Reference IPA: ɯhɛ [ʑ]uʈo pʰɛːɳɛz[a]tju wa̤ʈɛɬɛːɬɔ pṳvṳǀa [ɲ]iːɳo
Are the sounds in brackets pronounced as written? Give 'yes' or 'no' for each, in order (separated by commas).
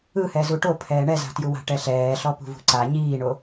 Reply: no, no, yes